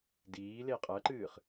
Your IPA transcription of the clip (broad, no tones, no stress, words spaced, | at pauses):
diː leqʼɐǃɨːχ